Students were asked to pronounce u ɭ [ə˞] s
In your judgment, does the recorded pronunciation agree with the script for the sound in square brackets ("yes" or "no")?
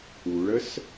no